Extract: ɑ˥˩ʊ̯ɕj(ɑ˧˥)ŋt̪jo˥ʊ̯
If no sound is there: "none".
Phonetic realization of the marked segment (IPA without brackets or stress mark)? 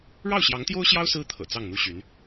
ɑ˧˥